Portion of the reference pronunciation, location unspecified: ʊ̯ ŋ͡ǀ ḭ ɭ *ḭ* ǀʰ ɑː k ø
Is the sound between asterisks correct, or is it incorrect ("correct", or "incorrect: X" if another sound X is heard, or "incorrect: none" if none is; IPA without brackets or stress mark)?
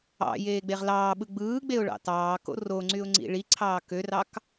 incorrect: i